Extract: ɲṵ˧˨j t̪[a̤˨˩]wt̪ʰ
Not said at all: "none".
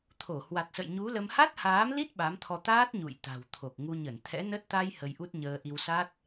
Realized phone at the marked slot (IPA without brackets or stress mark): a̤˨˩